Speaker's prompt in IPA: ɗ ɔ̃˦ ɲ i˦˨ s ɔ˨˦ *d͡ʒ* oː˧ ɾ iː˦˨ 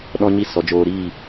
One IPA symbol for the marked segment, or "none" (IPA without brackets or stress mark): d͡ʒ